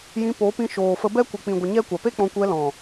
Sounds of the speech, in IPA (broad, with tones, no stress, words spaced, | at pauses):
jĩ˧ po˨˦pĩ˧ ʃoː˨fə˧bɛ˦ kʷə˨k͡pĩ˨ɡʷə˨ ɲɛ˦kʷa˨ pe˦k͡pɔ̃˧kʷɛ˧ lɔ̃˨